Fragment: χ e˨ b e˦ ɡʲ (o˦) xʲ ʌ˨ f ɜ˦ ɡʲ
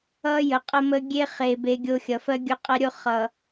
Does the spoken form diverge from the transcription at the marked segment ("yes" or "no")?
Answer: no